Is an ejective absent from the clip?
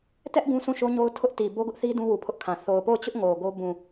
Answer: yes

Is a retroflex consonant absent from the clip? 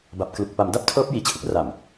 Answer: yes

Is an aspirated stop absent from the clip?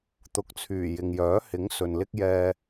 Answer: no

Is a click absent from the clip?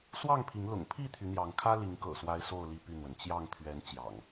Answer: yes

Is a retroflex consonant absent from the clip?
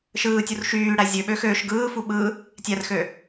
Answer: no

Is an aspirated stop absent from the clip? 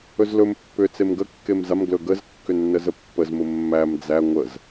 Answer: yes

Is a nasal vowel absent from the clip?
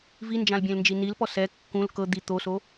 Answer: no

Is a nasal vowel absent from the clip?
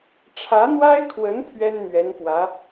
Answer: yes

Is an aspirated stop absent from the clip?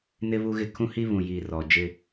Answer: no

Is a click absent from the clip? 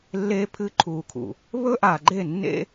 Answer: no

